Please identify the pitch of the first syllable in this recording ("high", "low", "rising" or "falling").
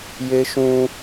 high